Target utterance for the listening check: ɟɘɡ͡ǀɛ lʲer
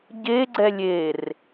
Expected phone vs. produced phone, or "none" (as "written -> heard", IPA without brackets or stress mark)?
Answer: ɘ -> e